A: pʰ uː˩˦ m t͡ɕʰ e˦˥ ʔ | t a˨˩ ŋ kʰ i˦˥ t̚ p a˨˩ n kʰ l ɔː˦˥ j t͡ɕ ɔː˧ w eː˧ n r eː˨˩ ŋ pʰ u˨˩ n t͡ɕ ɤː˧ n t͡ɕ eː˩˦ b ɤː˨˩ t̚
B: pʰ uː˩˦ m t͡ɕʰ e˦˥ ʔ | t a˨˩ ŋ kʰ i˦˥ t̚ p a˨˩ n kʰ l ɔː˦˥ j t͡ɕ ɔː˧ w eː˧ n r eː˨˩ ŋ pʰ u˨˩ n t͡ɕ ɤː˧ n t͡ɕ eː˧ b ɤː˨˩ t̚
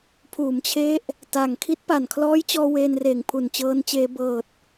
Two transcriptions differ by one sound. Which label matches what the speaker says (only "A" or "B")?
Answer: B